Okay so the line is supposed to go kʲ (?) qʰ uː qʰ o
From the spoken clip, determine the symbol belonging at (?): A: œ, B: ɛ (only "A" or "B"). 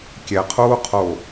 B